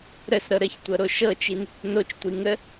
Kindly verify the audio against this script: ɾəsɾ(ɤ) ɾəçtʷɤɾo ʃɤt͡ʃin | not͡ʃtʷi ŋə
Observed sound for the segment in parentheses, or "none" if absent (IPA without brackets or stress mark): ɤ